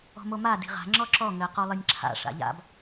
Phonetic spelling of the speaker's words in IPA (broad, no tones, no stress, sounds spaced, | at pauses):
ɔ̤ m o m a d i̤ ʁ a̤ ŋ͡ǁ ɔ ǁ ɔ ŋ ɘ q o lˠ ɨ nʲ ǁʰ a̰ ʂ a̰ ʎ a̰ b